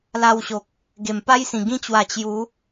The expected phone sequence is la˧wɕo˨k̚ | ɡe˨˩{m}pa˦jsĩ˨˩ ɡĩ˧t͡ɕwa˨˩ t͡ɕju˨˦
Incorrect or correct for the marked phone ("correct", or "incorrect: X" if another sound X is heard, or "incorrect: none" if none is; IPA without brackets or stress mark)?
correct